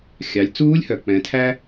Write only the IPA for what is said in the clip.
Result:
xʲ ɑ˩˧ lʲ t͡s uː˧˥ lʲ h œ˩ k͡p ɛ̃˩˧ tʰ æ˥

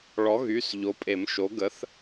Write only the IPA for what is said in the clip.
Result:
ɭ ɔ˨˥ ɣ y˩˧˩ s ʎ o˨˥ pʼ e˨˩˦ m ʃ o˨˥ ɡ ə˨˥ θ

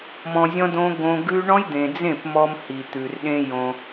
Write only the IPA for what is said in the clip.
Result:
m ɔ̃˧ zʲ ɔ̃˦ d õ˦ ɡ õ˧ ɡ ʉ˦ ɳ ɔ̃˦ j d̪ ẽ˨ d͡z ẽ˦˨ p m ɔ˧ m h i˨ t̪ ʉ˨ r ɗ ẽ˧ j õ˧

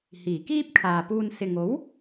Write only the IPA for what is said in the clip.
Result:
h iː˨˩ k iː˥ p̚ kʰ aː˨ p uː˧ n s ɪ˨ ŋ o˨˥ w

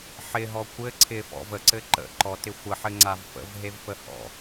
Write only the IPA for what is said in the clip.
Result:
ħ ɪ ɦ ɔ kʷ ɘ ǀʰ ɪ f ɔ̰ v ə ǀ ɘ ǃ ə̰ ǃ ɔ t ɪ xʷ ə ħ ɘ ŋ͡ǀ a v f ə̰ v ɦ e v f ə h ɔ̰

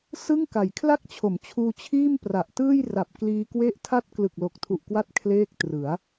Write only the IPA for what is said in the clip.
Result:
s ɯ˥˩ ŋ k a˩˦ j kʰ l a˥˩ k̚ t͡ɕʰ o˩˦ m t͡ɕʰ uː˧ t͡ɕʰ iː˥˩ m p r a˨˩ ʔ t ɯː˥˩ j r a˨˩ p̚ k l iː˧ k w e˥˩ ʔ tʰ a˥˩ t̚ k l ɯ˨˩ k̚ l o˨˩ k̚ tʰ u˨˩ ʔ k w a˦˥ t̚ kʰ l eː˥˩ k̚ t r ɯ˩˦ a̯

